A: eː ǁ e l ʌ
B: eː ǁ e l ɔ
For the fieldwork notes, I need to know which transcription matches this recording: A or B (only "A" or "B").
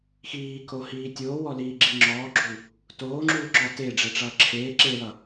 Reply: A